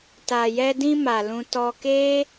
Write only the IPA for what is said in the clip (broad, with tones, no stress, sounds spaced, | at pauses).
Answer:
t a˨ j ɛ˧ d ĩ˧ m a˨ l ũ˧ t ɔ˧ k e˦